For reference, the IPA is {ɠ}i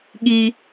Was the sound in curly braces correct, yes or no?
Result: yes